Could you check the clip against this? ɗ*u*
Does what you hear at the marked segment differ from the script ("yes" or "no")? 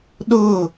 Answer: yes